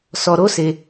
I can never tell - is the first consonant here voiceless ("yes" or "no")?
yes